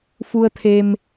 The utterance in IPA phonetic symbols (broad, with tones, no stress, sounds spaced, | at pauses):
f u˧ ə̯ t̪ʰ e˧ m